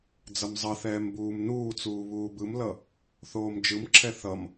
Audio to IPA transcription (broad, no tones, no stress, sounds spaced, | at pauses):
d͡z ʌ m zˤ ʌ θ ɛː m b uː m n uː t͡s uː β uː b ɯ m l ʌ | θ oː m d͡ʒ ɯ m ǁʰ ɛ θ ʌ m